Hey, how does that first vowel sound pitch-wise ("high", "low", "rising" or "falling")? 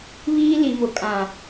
high